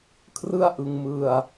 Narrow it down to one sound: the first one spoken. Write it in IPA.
kʰ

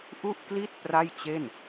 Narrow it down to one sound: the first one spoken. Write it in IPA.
ʔ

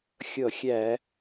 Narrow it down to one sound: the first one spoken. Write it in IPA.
xʲ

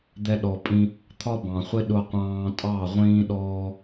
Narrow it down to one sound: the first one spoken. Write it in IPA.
d̪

